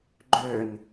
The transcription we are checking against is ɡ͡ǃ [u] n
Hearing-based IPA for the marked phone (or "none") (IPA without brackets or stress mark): ø